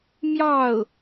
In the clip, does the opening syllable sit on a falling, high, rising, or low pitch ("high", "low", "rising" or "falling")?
falling